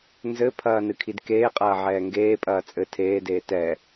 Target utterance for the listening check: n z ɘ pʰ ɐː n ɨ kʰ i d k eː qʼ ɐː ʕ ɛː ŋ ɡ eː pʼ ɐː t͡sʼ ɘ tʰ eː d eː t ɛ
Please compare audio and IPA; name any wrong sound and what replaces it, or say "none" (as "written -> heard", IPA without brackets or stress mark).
none